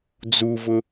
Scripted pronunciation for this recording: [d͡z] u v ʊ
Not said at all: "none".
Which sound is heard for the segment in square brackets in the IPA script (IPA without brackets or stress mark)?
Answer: d͡z